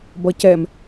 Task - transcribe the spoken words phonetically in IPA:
bʌcɛm

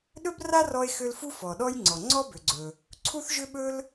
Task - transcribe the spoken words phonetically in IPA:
ɗɵ˥bra˥ rɔ˥e̯xʏ˥l fu˥fɔ˨ɗɔ˥j ŋ͡ǀɔ˨ŋ͡ǀɔ˥bʏ˨ɡ͡ǀɵ˨ | ǀʰu˥θʒʏ˥ɓɵ˥l

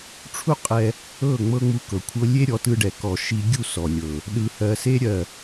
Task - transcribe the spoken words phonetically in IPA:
ʈ͡ʂʰu˦qʼɛ˧ | ɤ˦˨ ŋ͡mɤ˦ŋ͡mu˧ kɤ˨kʷʰɤ˦ lʲe˦ɾʲɔ˨˦tɯ˧ɖɛ˨ kɔ˨ ʃi˧ ɡʲu˦˨ sɔ˨lʲɤ˨ | ɗɯ˨hɜ˨se˧ ɾʲɜ˨

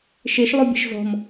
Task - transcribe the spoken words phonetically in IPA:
ʃeʃlˠubʲe̤ʃ zɔ̤m

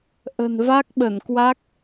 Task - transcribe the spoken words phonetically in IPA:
ʔə̤˨˩nva˦˥k̚ɓə˧˩nkwa˦˥k̚

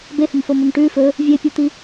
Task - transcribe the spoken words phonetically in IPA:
behɵmfomɵm ʈʉ fɵ | vʲepʲot̪i

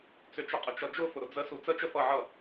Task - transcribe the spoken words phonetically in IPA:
t͡sʏt͡ʃəqʼət͡ʃʌ d͡ʒʊfʊɾʊ d͡zəsu t͡sət͡ʃə fʌʕʌ

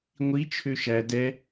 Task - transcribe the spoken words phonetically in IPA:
ŋʷi t͡ʃʰøʃæ dɛ

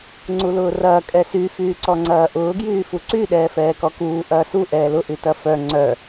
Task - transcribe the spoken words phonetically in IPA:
ŋ͡ǀulʊːrɐː kʼɛsy fyːǀɔŋ͡ǀɐːʔʊː ɡjyːfuǀy ɗɛːfɛːkɔkuː ʔɐːsu ʔɛːlʊ ʔytɐfœ ŋ͡ǀœ

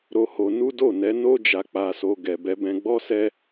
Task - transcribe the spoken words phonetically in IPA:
ɾo˧ho˧nu˦ do˦˨nɛ˨˦ no˧d͡ʒa˨ k͡pa˧so˧ ɡɛ˨bɛ˧bɛ̃˧ ɡ͡bɔ˦sɛ˦

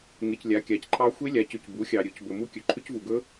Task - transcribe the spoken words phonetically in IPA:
ŋe˨clʲa˩˥ kʲa˩˥cǃʰɑ˦˥ xʷe˦˥lʲa˩˥cʏ˨c bu˩˥xʲɑ˨ ɾʲɵ˩˥c bɵ˨mu˦˥kʲɵ˩˥ ǃʰʏ˦˥cvu˨ɡɵ˦˥

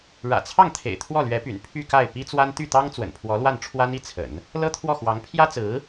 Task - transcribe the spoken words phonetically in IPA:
ɻä̰˨˩t͡sʰɑ˥˩ŋt̪ʰḛ˨˩ɪ̯ t̪ʰwɔ˥˩lɥɛ˧˥py̰˨˩n pʰy˥˧ka˥˩ɪ̯ pi˥t͡swa˥n t̪y˥˩t̪ɑ˥ŋ t͡swə̰˨˩npʰwɔ˧˥lwa˥˩nʈ͡ʂʰwa˥n i˥t͡sʰə̰˨˩˦n | lɤ˥t̪ʰwɔ˥˩xwɑ˧˥ŋ pʰjä˥t͡sɹ̩˧˥

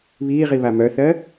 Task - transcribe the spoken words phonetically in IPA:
βiːʁi βamœθɜ

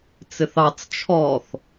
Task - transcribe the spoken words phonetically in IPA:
t͡sɪθɑt͡s t͡ʃʰɔθ

